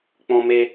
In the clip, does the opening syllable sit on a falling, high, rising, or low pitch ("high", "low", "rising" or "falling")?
high